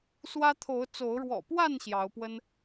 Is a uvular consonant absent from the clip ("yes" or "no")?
yes